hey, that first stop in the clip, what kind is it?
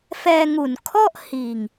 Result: aspirated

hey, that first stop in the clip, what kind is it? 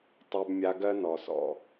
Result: plain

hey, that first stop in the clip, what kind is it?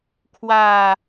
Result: aspirated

